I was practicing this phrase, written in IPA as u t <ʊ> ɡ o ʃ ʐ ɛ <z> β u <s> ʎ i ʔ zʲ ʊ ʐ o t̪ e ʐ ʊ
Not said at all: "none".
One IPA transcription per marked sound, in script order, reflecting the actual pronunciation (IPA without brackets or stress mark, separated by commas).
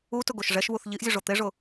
ʊ, ʃ, θ